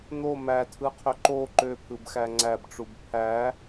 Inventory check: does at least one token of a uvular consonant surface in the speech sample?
yes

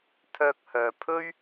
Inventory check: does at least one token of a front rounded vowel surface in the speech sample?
yes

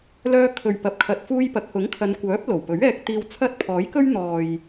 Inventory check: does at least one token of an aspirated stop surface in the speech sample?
yes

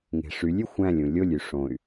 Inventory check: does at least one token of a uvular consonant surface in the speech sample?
no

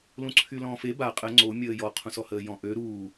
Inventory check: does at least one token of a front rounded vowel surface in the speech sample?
yes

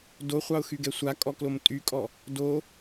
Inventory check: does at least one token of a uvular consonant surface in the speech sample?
yes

